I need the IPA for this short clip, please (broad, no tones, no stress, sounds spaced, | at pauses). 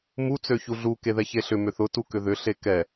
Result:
m u t͡s ø ç u ɮ u k e ð ɛ ç e ɬ ʏ m ʏ θ ʊ t u k ʏ ð ʏ ɬ e k ɛ